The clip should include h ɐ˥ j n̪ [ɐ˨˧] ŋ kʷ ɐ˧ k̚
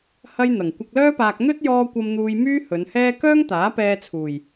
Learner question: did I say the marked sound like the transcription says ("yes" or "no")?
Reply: no